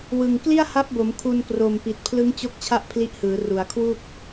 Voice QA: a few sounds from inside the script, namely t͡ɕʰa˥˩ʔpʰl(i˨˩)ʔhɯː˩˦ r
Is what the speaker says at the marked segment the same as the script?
no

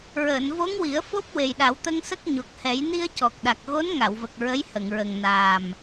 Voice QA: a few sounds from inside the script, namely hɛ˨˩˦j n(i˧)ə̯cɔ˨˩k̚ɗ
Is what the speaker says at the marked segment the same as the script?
yes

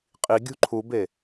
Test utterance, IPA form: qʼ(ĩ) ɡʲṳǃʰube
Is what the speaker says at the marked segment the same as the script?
no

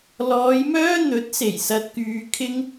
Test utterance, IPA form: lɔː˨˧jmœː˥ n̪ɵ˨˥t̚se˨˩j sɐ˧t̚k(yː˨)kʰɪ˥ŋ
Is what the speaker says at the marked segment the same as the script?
no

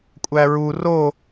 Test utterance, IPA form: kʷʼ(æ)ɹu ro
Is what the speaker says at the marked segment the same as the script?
yes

